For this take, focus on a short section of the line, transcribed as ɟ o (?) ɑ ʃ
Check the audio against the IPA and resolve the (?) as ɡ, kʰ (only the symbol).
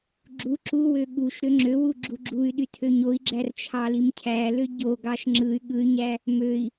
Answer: ɡ